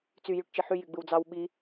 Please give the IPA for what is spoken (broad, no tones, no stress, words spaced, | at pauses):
t͡sy jyʈt͡ʃiħy jyɡ͡bɯwd͡zɑw ɓi